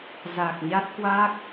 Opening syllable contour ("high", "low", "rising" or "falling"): low